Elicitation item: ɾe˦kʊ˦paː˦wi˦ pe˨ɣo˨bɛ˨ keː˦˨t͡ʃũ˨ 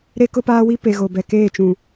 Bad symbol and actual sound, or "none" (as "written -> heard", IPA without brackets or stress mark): none